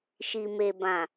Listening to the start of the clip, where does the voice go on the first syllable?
low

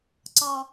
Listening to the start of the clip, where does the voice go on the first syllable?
low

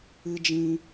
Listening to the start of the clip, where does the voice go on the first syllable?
low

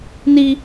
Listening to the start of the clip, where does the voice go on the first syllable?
high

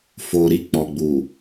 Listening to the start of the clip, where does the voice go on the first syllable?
low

